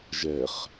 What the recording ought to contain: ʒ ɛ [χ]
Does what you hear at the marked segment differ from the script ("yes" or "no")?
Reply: no